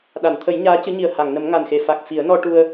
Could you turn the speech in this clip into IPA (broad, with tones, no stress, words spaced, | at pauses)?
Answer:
ɗa˨˩˨nt̪ʰə˨˩˦j ɲaː˧˥cɨ˧˥ɲi˨˩ə̯ ha˨˩˨ŋnə˨˩˦m ŋa˨˩nxe˨˩ fa˨˩k̚ fi˨˩˦ə̯nɔ˧ʈu˧ə̯